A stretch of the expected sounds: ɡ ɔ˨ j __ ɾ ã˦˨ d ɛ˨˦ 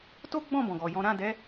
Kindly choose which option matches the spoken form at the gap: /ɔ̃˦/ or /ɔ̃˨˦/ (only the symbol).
ɔ̃˨˦